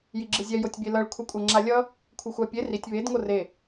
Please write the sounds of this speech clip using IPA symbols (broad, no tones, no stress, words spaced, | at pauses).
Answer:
jiɡ͡ǁɯzʲɛ jotʲbʲelʌɭ kʷʰɛkʷʼʌ ŋ͡ǁalʲʌ | kʷʰɯxʷapʲe ritʲ βed ŋore